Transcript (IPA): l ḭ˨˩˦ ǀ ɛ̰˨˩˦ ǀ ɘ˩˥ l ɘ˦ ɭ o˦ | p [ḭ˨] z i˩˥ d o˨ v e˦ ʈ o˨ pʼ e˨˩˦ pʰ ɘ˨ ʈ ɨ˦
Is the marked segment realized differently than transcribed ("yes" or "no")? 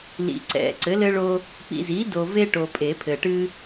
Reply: no